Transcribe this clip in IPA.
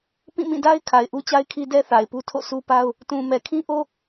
p ĩ˦˨ m ĩ˦˨ d a˦ ɪ̯ kʰ a˨ ɪ̯ ʔ u˦ t͡ɕ a˦ ɪ̯ kʰ i˦ d ɛ˦ θ a˨ ɪ̯ p u˦ tʰ o̰˦˨ sʰ u˦ p a˦ ʊ̯ | t ũ˨ m ɛ˨ kʰ ĩ˦ ʔ o˦

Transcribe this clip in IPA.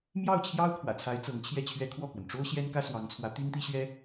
m j ɑ˥˩ ʊ̯ t͡ɕʰ j ɑ˥ ʊ̯ kʰ w ä̰˨˩ t͡sʰ a˧˥ ɪ̯ t͡s ɤ˧˥ ŋ t͡ɕʰ j ɛ˥˩ t͡ɕʰ ɥ ɛ˥ kʰ w ɔ˥˩ k w ə˩ n ʈ͡ʂ o˥ ʊ̯ ɕ j ɛ˥ n k ä˥ s w ɑ˧˥ ŋ t͡sʰ w ä˧˥ t̪ y˥ n t̪ i˥ ɕ ɥ ɛ˥

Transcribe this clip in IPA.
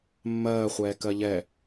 mː ɜː χʷ ɛː k ɜ ʎ ɛ

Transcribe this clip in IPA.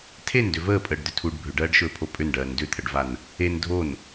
tʰ e n d ʏ v əː pʼ əː ɖ d̪ ʏ tʰ u ɖ bʱ ʏ ɖ ɜː ɖ ʃ ɵː pʰ o pʼ ʏ n ɖ ɜː n d ʏ t̪ʰ ə ɖ v a n | e n dʱ o n

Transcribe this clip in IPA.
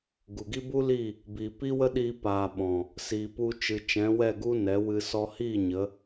ɡ u˨ ɡ i˦ b u˦ l iː˦˨ | b iː˨ p i˦ w ə˦ ɗ iː˧ p aː˨ ɓ ɔ̃˨ | s iː˨ p u˧ t͡ʃ ɨ˨ t͡ʃ ɛ̃˨˦ w ɛ˦˨ ɡ u˦ n ɛ˨˦ w ɨ˧ s ɔ˧ h iː˦˨ ɲ ə˨˦

